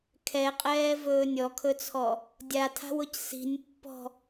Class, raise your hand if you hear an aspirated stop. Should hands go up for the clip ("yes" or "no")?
yes